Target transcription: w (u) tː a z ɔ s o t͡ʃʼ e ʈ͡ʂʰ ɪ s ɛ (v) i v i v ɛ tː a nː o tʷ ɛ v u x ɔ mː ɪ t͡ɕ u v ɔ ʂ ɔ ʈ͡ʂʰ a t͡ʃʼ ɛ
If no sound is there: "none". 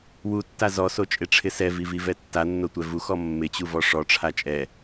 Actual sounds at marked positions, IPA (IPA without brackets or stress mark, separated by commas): u, v